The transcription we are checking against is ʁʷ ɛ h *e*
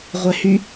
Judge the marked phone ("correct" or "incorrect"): incorrect